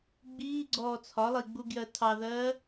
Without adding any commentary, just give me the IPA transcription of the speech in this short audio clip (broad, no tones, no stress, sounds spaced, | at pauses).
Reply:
ɡ͡b iː ɡ͡ǀ ɔː t͡sʰ ɒ lˠ i ɡ͡b u ɡ j ɜ tʰ ɑ ð ɜː